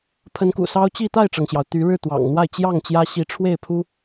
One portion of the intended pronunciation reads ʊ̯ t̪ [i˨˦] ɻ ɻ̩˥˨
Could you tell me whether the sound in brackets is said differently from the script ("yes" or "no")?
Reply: yes